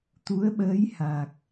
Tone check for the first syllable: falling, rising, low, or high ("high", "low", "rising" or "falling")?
rising